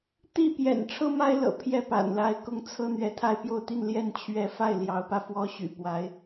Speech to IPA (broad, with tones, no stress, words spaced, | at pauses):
t̪i˥˩pjɛ̰˨˩n ʈ͡ʂʰɤ˥ma˥ɪ̯lɤ̰˨˩ pʰjɛ˥˩pa̰˨˩nla˧˥ɪ̯ kʊ˥ŋ t͡sʰɤ˥ n̪ɥɛ˧˥t̪ʰa˥˧ɪ̯ pjo˥˧ʊ̯t̪i˥˧nljɛ˥˧n t͡ɕʰɥɛ˥˧ fa˥˩ɪ̯ljɑ˧˥ʊ̯pä˧ fwɔ˥ɕy̰˨˩pwa˧˥ɪ̯